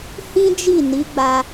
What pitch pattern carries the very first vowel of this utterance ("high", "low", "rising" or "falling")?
high